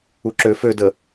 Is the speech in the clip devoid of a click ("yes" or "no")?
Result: no